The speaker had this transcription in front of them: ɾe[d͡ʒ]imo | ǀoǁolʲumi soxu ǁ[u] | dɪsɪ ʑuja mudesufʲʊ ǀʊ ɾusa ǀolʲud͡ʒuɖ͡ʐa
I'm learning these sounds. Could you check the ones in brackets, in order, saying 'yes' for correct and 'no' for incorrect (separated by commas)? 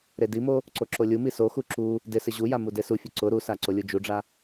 no, yes